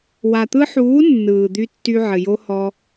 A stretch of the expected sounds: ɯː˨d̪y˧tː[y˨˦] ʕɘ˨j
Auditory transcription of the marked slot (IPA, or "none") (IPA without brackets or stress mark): y˧